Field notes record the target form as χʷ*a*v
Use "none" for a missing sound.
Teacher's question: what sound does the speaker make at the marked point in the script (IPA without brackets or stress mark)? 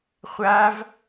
a